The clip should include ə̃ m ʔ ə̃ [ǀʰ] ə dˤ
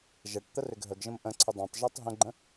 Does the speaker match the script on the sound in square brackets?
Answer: yes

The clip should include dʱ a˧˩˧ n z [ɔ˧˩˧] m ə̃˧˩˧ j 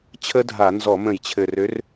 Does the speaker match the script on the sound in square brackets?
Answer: yes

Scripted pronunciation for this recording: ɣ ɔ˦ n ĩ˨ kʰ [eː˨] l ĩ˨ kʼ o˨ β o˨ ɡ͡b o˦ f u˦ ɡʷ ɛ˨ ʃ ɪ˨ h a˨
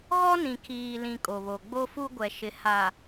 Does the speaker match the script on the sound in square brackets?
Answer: no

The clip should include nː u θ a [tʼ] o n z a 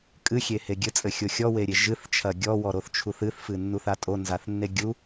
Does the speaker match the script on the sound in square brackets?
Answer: yes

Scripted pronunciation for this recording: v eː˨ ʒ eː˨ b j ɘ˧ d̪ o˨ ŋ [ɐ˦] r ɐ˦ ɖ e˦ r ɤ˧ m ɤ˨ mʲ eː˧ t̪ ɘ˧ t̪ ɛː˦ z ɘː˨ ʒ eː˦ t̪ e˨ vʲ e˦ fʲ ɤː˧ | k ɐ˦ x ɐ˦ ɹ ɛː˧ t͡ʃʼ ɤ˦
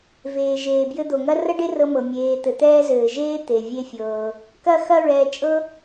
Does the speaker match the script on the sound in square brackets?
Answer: yes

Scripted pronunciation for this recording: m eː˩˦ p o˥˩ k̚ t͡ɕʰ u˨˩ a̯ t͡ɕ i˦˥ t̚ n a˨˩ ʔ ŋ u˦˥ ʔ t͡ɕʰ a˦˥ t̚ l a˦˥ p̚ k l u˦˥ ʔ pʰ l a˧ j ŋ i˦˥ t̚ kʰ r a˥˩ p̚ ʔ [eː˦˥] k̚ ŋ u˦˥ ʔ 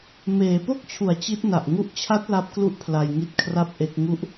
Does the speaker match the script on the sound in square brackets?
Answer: no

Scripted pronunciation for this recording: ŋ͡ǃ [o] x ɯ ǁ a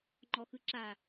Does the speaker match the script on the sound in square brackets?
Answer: no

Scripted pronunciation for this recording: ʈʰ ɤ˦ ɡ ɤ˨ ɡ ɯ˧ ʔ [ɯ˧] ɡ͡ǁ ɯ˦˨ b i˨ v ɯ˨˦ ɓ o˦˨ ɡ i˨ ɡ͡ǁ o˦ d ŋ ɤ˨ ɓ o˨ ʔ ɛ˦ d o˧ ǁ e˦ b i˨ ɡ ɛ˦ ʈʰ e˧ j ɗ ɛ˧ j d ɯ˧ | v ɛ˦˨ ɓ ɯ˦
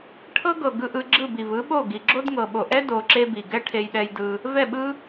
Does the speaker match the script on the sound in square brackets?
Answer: yes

